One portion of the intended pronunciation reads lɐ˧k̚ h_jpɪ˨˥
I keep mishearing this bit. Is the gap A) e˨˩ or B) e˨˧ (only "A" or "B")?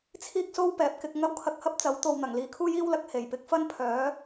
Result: A